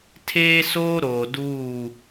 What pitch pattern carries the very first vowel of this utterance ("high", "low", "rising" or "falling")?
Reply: high